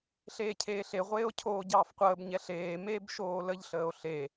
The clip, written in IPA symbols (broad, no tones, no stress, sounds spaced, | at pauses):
ɬ eː cʰ eː ɬ e ʁʷ eː o̯ cʰ oː ɟ ɑː f qʷ əː b ɲ ɛ ɬ eː m eː b ʃ oː l ə ʎ ɬ əː o̯ ɬ e